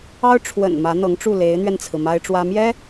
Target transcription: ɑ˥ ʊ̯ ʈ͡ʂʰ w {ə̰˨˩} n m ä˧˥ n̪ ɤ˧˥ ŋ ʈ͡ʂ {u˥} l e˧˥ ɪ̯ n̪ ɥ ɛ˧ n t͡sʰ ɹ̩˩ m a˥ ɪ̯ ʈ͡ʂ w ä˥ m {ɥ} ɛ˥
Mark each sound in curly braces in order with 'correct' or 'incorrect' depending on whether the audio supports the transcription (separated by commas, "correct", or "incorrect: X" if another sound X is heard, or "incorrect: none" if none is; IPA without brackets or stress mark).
correct, incorrect: u˥˩, incorrect: j